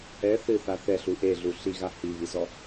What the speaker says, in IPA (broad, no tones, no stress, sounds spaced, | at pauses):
ɛ θ ɨ θ a θ ɛ ɬ u ʔ e ɮ u ɬ i ɣ a h i β i z ɔ